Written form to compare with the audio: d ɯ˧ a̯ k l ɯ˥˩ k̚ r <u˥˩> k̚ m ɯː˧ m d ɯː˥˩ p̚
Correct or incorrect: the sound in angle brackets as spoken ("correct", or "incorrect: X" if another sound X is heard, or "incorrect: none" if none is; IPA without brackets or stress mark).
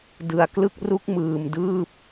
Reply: incorrect: u˦˥